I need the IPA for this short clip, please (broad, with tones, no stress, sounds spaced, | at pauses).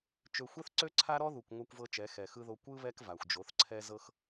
t͡ʃ ø˨ xʷ ɛ˦ θ ǀ ø˦ ǀʰ a˦ ɾ ɔ˦ ð u˨ kʷ ŋʷ a˦ kʷ v ɤ˦ t͡ʃ ɛ˨˦ x ɛ˨ x ɯ˦ ð o˦ kʷ ɯ˦ β ɛ˦ k v a˨ xʷ d͡ʒ o˨˦ θ ǀʰ ɛ˦ z ɤ˦ x